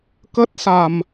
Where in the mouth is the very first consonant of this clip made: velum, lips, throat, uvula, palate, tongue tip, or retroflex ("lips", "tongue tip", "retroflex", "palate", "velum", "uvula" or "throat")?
velum